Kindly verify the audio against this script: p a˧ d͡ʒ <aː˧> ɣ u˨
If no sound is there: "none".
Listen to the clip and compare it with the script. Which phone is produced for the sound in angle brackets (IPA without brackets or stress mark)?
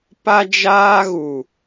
aː˧